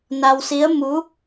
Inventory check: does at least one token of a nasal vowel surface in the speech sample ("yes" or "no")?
no